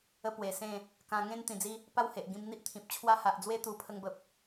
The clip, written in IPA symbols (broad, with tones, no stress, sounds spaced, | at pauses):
ə˦ p w e˨˩ s ẽ˥˧ | k ã˧ ŋ ẽ˦ n t̪ ĩ˨˩ d͡z i˧ | p a˥˧ w h e˨ ʔ ɡ ĩ˧ m n̪ i˦ ʔ t̪ʰ ĩ˨ p̚ t͡ɕʰ w a˦ h a˨ ʔ d͡z w e˦ t̪ u˧ pʰ ə˧ ŋ b ə˨ p̚